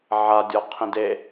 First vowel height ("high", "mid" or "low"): low